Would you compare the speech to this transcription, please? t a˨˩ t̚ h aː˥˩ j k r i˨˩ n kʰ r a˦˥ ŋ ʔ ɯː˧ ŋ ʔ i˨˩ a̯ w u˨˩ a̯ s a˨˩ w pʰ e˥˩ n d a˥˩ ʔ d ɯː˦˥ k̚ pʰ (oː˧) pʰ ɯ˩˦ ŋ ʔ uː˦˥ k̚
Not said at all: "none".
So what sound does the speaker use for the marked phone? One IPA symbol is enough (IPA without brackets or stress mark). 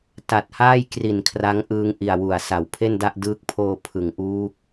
oː˧